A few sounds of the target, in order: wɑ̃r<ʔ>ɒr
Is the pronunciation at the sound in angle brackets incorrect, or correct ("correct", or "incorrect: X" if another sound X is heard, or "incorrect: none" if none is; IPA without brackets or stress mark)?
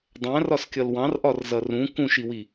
correct